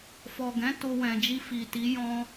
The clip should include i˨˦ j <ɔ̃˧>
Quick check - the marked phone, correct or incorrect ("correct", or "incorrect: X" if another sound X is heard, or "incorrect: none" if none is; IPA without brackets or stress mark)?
correct